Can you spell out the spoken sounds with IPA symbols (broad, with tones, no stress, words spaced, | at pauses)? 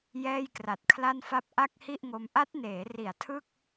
jɛː˥˩jkra˨˩t̚kʰla˥˩nfa˥˩p̚ ʔa˥˩k̚hi˥˩ʔŋo˧m ʔa˦˥t̚neː˩˦ ri˨˩a̯tʰɯ˥˩k̚